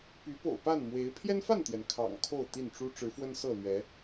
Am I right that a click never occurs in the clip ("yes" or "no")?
yes